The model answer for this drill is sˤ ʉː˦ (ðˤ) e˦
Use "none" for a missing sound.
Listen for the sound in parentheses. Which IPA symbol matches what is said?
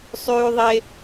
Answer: ðˤ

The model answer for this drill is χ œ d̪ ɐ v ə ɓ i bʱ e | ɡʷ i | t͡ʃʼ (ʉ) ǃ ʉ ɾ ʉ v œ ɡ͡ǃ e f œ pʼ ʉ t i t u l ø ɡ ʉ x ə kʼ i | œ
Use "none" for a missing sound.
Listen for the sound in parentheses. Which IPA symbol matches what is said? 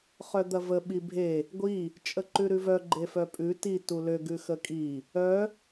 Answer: ə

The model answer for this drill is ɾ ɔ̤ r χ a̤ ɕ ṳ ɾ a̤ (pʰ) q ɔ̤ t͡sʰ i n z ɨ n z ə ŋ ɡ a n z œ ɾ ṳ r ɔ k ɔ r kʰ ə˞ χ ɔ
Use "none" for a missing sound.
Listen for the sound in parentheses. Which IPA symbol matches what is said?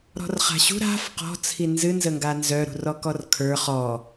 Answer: f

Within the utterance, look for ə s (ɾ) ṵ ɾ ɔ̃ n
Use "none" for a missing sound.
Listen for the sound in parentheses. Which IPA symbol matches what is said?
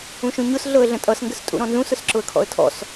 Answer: tʼ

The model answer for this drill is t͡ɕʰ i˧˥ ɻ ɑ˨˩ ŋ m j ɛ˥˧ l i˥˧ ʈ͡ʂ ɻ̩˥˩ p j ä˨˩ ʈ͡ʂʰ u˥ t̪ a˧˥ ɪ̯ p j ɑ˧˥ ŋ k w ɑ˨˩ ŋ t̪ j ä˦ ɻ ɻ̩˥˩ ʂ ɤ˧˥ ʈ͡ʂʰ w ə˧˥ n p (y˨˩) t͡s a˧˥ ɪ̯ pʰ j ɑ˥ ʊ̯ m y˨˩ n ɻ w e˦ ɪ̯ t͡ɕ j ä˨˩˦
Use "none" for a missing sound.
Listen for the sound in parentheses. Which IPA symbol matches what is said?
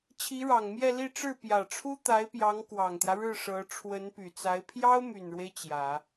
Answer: y˨˩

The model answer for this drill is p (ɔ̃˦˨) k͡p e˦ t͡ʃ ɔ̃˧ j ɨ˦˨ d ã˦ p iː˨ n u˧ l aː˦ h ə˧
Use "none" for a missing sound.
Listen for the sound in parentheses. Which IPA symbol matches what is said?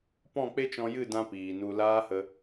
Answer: ɔ̃˦˨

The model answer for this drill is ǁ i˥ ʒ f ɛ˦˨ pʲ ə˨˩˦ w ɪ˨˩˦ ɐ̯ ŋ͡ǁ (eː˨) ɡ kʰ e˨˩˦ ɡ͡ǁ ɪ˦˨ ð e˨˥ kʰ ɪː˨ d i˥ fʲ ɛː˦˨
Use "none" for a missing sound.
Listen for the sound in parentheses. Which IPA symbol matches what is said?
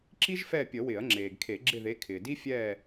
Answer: eː˨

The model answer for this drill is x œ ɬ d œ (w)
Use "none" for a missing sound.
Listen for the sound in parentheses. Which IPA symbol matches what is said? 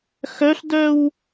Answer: w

